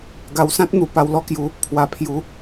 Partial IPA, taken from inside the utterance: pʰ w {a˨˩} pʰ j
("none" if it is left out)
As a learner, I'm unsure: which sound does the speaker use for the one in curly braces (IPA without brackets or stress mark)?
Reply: a˨˩